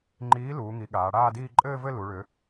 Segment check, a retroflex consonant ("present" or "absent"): present